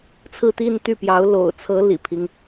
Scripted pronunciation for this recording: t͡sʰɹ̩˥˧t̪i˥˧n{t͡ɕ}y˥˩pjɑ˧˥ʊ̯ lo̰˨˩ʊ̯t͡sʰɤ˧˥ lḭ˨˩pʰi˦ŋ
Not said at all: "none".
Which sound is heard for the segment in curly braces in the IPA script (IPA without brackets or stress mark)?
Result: t̪